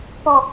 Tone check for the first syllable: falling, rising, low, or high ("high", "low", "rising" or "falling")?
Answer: falling